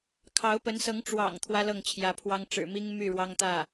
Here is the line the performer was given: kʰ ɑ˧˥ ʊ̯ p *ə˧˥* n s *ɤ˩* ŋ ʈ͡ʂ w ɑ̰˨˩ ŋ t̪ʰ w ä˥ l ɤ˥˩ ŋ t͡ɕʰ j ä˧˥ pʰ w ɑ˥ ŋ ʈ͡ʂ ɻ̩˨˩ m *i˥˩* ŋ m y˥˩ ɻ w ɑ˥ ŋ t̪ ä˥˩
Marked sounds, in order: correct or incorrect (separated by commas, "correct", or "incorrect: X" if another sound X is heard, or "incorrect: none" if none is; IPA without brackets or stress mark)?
correct, incorrect: ɤ˧˥, incorrect: i˥